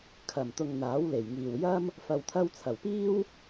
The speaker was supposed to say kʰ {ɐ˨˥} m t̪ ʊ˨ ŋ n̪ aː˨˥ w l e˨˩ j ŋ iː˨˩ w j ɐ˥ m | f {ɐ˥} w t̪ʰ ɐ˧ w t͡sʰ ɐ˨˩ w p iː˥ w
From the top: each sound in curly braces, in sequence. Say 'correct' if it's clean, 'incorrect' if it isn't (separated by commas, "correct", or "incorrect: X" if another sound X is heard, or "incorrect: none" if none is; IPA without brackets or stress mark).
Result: incorrect: ɐ˨˩, incorrect: ɐ˨